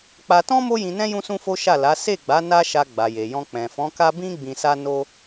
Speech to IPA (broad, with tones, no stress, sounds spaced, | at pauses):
k͡p a˧ t ɔ̃˦ m o˦ j ĩ˧ n ɛ̃˦ j ũ˦ s ũ˦ f o˦ ʃ a˦˨ l a˨˦ s e˦˨ ɡ͡b a˨˦ n a˦ ʃ a˧ ɡ͡b a˨ j e˨ j ɔ̃˧ k͡p ɛ̃˨ f ɔ̃˨˦ k a˦ b ĩ˦ ɡ͡b ĩ˧ s a˦ n o˦